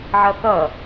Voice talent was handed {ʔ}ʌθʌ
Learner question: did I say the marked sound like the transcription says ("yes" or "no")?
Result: no